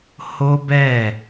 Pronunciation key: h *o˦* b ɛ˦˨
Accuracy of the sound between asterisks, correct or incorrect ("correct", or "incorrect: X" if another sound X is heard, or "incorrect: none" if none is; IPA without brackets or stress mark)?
correct